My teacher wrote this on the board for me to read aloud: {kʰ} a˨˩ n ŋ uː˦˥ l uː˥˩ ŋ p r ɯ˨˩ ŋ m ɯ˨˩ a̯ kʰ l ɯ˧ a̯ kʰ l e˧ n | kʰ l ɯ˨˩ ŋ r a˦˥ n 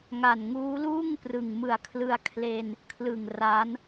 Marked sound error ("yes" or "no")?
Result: yes